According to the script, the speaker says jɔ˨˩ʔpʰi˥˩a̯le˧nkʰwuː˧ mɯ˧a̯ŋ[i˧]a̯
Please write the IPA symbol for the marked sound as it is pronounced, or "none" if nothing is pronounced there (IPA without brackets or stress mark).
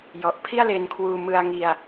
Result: i˧